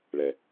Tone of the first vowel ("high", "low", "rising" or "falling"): low